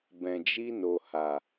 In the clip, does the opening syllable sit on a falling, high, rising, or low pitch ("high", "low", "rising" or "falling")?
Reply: low